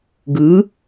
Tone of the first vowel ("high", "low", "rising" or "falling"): rising